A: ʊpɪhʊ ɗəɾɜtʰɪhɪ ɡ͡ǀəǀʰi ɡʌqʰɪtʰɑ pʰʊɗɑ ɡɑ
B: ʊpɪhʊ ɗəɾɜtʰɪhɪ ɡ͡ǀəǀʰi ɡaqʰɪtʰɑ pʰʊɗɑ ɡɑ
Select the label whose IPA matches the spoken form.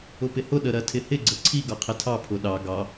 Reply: A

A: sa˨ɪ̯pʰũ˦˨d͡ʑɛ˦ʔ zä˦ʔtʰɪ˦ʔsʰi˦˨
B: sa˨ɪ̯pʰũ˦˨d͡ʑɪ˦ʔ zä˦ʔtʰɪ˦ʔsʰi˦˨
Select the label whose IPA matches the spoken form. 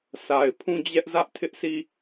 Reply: A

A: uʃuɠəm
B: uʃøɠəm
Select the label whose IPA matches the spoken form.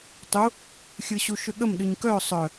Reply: B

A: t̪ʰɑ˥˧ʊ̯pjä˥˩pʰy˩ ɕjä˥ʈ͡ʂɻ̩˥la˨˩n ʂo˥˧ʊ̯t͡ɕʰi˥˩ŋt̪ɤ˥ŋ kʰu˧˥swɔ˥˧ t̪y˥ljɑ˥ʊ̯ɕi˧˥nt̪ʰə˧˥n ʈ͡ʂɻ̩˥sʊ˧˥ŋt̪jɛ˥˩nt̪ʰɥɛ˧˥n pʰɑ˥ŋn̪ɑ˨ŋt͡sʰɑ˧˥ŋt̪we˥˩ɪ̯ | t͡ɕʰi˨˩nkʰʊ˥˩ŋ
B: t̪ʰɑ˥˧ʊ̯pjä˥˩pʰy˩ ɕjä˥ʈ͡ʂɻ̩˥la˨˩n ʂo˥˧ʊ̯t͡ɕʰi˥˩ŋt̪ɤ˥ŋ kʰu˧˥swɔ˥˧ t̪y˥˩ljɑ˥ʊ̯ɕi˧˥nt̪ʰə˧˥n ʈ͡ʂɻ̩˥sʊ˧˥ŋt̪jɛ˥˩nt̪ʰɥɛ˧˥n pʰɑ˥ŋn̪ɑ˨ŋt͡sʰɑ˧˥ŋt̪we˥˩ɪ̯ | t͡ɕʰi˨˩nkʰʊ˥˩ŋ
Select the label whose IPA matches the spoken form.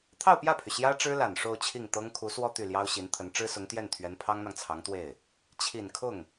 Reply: B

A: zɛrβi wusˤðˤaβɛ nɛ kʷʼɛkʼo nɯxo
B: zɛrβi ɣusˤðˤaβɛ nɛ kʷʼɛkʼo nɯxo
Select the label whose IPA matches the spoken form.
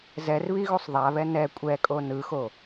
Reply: B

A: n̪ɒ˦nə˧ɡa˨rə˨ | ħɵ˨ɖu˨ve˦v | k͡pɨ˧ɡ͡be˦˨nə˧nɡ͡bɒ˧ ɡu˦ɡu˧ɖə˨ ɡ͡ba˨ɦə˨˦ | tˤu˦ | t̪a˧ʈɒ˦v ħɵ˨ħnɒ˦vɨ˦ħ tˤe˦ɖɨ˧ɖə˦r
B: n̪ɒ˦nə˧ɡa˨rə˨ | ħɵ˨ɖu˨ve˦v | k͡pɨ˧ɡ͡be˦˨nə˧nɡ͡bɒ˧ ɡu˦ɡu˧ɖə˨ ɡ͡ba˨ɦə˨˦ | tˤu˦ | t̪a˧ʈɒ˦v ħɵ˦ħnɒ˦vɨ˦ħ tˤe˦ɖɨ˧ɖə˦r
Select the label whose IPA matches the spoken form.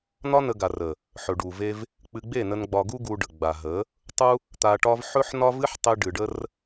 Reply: B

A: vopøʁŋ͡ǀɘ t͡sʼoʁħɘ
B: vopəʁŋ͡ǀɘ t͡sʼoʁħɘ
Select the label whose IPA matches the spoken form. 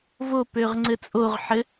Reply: A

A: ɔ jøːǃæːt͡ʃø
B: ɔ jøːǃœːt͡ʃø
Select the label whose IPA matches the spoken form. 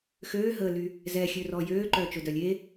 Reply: B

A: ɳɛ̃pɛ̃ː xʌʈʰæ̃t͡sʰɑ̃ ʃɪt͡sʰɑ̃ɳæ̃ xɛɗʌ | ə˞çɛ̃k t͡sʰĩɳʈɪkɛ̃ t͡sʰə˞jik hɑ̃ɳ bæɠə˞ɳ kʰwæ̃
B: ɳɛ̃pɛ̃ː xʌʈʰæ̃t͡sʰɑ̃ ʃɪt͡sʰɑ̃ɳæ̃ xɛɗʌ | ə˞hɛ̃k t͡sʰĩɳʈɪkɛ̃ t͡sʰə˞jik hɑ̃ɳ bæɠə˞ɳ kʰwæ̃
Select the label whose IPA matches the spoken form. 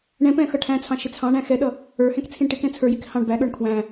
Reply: B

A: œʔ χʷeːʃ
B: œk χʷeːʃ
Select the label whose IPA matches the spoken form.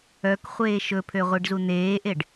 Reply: B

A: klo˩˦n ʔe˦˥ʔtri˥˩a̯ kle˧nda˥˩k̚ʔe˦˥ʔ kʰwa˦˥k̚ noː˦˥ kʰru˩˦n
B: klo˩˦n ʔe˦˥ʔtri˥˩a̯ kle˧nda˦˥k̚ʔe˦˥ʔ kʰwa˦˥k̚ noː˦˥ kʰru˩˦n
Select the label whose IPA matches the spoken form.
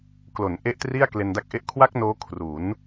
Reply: B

